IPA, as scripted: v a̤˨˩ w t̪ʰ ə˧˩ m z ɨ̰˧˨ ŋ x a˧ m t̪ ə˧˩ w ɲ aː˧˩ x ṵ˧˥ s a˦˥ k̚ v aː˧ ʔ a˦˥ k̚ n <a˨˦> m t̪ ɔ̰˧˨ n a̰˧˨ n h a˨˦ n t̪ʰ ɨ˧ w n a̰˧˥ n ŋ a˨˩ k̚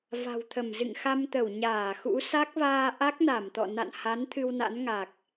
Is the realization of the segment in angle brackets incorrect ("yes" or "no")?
yes